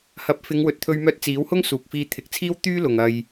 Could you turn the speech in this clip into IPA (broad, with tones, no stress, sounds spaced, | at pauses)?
h ɐ˨˥ p̚ f ɪ˨˧ ŋ w ɵ˨ t̚ t̪ʰ ɵ˧ ɥ m œː˧ t̚ t͡s iː˨˥ w h ʊ˥ ŋ s uː˨ k̚ f iː˧ t̪ʰ ɪ˨˥ k̚ t͡sʰ iː˥ w t̪ yː˥ l ʊ˨ ŋ ɐ˨ j